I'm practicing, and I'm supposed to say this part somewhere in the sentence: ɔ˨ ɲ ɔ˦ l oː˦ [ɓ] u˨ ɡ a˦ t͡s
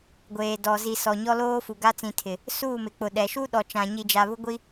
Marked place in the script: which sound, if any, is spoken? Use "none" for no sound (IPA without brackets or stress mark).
f